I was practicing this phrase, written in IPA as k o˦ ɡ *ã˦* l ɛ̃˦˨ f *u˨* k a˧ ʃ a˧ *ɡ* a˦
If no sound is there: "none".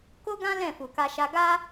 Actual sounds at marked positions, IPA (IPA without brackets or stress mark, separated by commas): ã˦, u˨, ɡ